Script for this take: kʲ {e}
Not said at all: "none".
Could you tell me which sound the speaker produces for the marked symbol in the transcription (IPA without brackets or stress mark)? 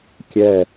ɛ